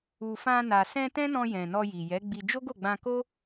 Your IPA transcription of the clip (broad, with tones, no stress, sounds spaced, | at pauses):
u˨ f ã˧ n a˨ s ɛ̃˧ t ɛ̃˦ n ɔ̃˧ j ɛ̃˨ n ɔ˧ j i˨ j ɛ˨˦ ɡ͡b i˧ d͡ʒ o˦ ɡ o˦˨ ɡ͡b ã˧ k o˦